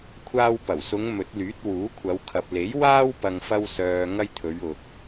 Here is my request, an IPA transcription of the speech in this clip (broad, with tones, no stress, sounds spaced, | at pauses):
kʷʰ aː˧ w p ɐ˨˩ w s ʊ˨˧ ŋ m ɵ˨˥ t̚ l yː˨˥ t̚ w uː˨˥ kʷʰ ɐ˨˧ w kʰ ɐ˨ p̚ l e˨˥ j w aː˥ w p ɐ˧ ŋ f ɐ˧ w s œː˨ ŋ ɐ˧ j t̪ʰ ɵ˨˧ ɥ ʊ˨ k̚